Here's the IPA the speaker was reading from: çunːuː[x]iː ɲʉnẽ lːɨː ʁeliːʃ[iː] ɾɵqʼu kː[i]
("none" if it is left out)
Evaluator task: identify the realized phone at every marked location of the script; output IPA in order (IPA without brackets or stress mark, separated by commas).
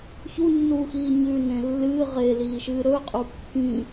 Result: x, ɨː, ĩ